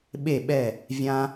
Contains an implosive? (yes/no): yes